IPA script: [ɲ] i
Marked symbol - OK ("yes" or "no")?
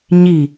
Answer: yes